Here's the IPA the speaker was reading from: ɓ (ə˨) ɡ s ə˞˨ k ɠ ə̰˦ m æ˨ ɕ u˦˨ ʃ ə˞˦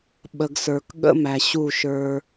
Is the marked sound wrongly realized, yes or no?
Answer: no